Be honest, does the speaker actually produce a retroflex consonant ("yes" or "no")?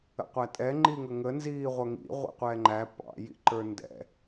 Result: no